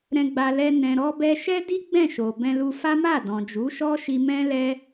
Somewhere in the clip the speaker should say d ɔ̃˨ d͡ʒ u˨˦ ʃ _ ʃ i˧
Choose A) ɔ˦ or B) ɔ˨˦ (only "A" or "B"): A